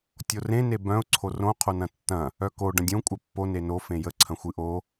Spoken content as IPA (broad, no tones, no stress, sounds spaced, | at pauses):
tʲ o r ẽ n e b œ̃ ʊ̯ ǀʰ o r õ qʰ o n ɐ̃ tː ɐ̃ | œ k o ɖ ɐ̃ dʲ õ kʷʼ œ pː o n e n o f ẽ j ə ǀʰ ɐ̃ xʷ ɨ ʔ o